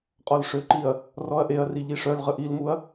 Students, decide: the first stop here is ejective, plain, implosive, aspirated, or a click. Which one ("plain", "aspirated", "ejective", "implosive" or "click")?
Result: ejective